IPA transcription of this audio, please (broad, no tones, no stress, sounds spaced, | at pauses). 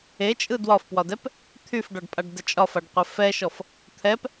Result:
e t͡ʃʼ ɯ d w ɒ f p w ɒ d ɛ p | t̪ʰ y f ɖ ɒ ɖ pʼ a ɖ d ə t͡ʃʼ ɒ f a ɖ qʷ ɛ f ɛ ʃ ɔ f | t̪ʰ ɛ p